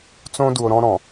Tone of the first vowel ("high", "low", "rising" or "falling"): high